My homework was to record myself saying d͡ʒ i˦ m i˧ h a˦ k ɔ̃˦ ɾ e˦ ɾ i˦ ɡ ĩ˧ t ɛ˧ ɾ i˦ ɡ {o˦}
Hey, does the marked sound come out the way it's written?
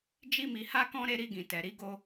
yes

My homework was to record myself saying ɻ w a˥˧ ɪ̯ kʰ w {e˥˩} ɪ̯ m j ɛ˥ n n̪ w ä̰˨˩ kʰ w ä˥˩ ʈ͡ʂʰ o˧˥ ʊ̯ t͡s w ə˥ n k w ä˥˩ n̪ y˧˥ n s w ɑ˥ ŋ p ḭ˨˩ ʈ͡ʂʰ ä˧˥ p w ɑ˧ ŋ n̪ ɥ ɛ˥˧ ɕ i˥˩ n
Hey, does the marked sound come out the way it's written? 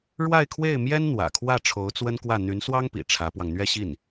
yes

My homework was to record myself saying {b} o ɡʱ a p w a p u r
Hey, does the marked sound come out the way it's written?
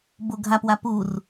yes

